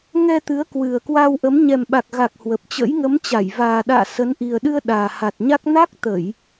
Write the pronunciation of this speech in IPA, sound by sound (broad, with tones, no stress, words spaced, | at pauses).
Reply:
ŋɛ˧t̪ɨ˨˦ə̯ kwɨ˨˩ə̯kwa˧wʔə˨˦m ɲɛ˨˩mɓa˨˩k̚ɣa˨˩k̚ hwə˨˩p̚t͡ɕə̰˧˥j ŋə˨˦mt͡ɕa˧˩j vaː˨˩ɗa̰ː˧˨ sə˨˦n ʔi˨˩ə̯ɗɨ˧ə̯ ɗaː˨˩ha˨˩t̚ɲa˦˥k̚ na˦˥k̚t̪ə˧˩˨j